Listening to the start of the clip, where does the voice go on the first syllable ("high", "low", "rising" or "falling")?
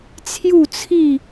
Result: falling